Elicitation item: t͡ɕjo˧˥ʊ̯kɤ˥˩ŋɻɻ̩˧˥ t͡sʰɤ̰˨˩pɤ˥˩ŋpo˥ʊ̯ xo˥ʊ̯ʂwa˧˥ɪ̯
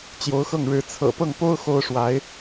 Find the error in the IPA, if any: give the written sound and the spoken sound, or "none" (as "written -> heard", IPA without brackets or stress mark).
k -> x